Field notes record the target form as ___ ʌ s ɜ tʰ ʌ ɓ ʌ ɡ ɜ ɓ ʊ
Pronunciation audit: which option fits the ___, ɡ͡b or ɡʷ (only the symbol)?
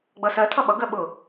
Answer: ɡ͡b